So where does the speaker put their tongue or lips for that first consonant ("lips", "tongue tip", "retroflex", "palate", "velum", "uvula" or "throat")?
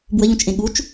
lips